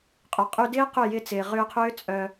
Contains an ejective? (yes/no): yes